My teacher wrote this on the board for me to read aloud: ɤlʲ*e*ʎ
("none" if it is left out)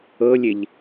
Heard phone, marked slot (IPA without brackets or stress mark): e